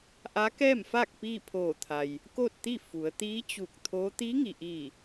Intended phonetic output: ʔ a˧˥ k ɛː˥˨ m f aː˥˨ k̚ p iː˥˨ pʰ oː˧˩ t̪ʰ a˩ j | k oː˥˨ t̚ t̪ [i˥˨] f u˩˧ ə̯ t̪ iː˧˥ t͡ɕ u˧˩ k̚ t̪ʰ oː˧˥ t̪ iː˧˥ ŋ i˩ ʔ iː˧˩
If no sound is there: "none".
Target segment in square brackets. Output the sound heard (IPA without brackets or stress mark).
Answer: i˥˨